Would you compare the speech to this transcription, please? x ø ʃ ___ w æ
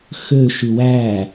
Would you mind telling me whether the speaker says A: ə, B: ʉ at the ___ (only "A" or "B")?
B